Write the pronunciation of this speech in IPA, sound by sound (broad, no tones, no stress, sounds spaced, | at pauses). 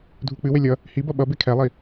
dʱ u k͡p ɨ w e lʲ ʌ | h i b ʌ ɓ ʌ b e kʰ ɛ lˠ i